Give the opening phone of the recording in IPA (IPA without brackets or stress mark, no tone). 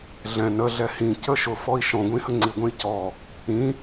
ɮ